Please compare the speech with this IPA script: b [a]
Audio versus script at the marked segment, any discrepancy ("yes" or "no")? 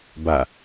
no